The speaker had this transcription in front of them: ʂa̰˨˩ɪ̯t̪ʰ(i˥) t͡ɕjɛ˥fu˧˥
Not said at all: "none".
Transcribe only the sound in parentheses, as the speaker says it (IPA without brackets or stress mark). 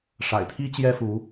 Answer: i˥